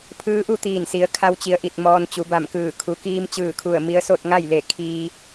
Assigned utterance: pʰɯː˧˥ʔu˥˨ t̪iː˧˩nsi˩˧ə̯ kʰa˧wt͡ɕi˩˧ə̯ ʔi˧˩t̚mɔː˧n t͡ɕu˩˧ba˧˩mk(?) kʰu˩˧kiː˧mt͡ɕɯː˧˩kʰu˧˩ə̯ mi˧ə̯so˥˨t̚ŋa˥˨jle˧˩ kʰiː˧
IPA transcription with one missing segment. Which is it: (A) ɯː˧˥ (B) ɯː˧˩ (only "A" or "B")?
B